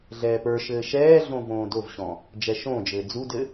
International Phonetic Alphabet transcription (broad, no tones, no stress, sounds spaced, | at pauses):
ɮ ɛː p ə˞ ʃ ɘː ʃ ɛː ɮ õ v õː d o v ɕ ɔ̃ | d͡ʒ ɛ ʃ õː d͡ʒ ɘː d͡z u d ɘ